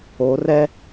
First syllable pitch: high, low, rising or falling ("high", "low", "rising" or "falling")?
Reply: rising